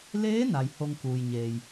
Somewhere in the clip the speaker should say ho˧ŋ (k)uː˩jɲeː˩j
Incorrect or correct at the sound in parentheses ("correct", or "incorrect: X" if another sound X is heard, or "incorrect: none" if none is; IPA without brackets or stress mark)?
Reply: correct